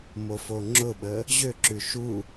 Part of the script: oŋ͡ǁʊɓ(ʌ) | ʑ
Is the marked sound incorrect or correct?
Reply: incorrect